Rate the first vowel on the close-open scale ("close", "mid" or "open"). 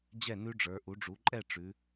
mid